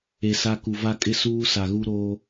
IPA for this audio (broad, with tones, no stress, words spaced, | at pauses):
e˨ sa˦ ku˨va˦kʼɪ˦ suː˦sa˨ɣu˦ɾoː˦